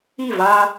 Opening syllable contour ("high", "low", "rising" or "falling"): falling